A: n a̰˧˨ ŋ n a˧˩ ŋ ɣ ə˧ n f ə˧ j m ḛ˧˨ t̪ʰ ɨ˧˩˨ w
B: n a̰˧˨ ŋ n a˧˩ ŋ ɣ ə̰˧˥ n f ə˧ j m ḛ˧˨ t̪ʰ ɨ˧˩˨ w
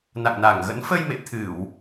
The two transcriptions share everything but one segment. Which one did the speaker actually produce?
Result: B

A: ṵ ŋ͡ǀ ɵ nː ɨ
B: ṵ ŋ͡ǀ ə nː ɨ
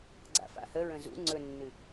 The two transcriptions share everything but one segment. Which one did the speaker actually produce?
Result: A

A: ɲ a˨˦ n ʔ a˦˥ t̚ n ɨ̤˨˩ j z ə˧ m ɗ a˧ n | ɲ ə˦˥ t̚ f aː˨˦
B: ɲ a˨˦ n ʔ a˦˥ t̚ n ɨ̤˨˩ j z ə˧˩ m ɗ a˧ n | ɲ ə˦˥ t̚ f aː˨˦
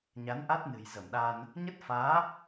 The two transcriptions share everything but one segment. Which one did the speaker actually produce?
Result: B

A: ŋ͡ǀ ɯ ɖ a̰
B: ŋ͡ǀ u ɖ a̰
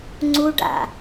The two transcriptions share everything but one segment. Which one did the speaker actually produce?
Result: B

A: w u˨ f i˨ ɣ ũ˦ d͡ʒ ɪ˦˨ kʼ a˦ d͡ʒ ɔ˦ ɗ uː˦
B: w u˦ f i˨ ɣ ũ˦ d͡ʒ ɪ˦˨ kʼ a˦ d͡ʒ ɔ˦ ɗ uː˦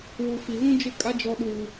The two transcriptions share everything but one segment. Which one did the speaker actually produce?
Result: A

